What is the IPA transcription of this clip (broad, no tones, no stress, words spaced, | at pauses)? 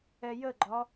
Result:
ɛjəɡ͡ǃɒ